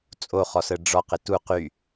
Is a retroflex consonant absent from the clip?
no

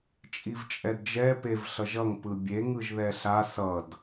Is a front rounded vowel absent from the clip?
yes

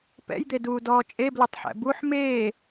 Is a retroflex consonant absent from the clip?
yes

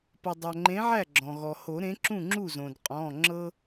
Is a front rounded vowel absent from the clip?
yes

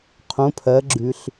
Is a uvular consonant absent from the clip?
no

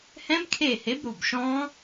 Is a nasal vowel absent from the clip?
no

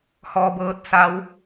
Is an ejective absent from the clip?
yes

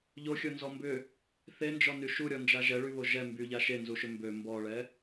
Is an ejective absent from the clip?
yes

